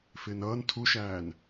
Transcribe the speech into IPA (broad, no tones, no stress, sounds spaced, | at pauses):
f ɪː n ʌː n tʰ u ʃ æː n